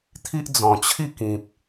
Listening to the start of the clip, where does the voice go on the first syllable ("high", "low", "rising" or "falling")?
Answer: high